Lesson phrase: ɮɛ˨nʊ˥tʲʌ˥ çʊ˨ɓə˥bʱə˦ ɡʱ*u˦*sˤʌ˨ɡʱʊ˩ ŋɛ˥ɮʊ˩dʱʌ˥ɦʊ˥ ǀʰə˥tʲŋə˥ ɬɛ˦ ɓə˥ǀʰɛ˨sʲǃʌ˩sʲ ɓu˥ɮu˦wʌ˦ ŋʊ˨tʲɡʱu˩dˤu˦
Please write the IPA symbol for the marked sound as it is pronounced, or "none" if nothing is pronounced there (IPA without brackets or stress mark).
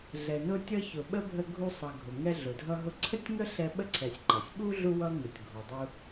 u˦